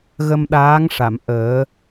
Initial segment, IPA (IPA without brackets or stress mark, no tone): ɣ